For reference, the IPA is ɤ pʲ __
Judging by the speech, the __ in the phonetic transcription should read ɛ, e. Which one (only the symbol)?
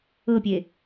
e